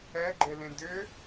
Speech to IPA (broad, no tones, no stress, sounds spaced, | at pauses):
ɛ ɡ͡ǃ e l ẽ d ʏ